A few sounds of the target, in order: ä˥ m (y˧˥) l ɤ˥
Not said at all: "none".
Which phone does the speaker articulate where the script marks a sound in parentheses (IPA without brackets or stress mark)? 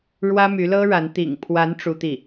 y˧˥